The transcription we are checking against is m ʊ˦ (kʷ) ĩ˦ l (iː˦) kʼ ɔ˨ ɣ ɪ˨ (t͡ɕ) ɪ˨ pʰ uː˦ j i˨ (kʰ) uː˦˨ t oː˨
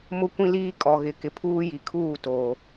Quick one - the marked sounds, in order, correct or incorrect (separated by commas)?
correct, correct, incorrect, correct